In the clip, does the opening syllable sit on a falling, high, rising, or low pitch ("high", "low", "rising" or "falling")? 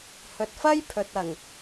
low